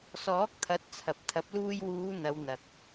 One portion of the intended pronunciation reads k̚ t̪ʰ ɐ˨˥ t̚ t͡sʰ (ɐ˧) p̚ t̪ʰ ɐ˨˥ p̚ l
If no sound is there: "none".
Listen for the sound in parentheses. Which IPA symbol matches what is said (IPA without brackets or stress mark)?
ɐ˨